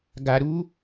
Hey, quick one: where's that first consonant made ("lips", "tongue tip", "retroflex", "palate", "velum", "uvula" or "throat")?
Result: velum